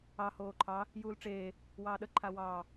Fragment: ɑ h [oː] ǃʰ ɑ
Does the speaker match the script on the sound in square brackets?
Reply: yes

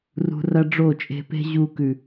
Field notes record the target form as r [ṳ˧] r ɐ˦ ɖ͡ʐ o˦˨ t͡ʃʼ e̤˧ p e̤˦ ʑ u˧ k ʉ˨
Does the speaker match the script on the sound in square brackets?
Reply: yes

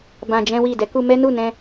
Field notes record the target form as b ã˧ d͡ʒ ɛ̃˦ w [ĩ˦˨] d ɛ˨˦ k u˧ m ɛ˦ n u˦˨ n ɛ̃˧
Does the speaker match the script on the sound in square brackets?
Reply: no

